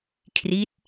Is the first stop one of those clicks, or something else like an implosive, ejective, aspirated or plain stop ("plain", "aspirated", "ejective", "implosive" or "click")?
aspirated